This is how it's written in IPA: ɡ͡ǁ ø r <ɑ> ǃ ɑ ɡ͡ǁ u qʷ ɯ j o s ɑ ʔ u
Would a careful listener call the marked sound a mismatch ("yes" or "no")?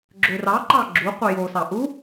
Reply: no